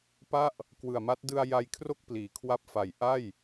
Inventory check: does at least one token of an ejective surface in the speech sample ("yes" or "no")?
no